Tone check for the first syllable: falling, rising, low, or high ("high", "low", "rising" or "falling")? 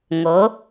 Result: rising